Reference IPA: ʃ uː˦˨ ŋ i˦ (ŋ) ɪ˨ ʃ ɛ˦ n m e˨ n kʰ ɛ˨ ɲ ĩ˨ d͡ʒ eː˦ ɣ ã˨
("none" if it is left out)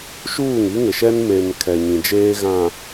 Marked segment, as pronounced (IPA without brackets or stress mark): ŋ